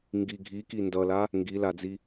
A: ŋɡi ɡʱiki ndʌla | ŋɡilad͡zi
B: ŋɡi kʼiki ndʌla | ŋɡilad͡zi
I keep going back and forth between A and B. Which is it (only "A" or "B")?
A